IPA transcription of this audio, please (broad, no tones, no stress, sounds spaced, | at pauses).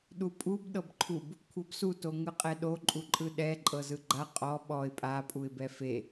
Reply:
ɗ u pʼ u b ɗ ɤ b ǃʰ u b | kʷʰ ɤ b s u t o ŋ ɯ qʼ ɛ ɗ o ǃʼ u ǃʼ ɯ ɗ ɛ ǃʼ ɤ z ɯ ɡ͡ǃ a qʼ ɔ ɓ ɔ ɪ̯ pʼ a pʼ u ɪ̯ b ɛ f e